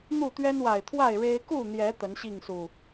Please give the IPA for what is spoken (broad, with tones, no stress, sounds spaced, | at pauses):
n̪ u˥˨ t̪ ɥ ɛ˦ n w a˨˩ ɪ̯ t̪ʰ w a˥˨ ɪ̯ ɻ e˦ ɪ̯ k u˥˨ n̪ j ɛ˨˦ t̪ ə˨˦ n ɕ i˥˨ ŋ s u˨˩